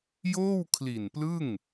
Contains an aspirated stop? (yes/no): yes